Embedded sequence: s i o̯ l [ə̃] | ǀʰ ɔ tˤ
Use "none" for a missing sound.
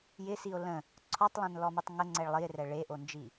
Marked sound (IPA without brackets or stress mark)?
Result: ə̃